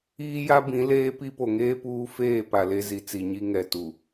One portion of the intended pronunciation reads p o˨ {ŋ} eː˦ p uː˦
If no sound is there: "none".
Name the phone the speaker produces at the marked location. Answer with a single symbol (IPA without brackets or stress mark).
ŋ